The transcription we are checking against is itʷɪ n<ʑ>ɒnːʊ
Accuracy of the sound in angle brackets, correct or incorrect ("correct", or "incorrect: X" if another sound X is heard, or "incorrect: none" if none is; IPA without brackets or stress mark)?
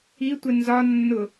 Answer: incorrect: z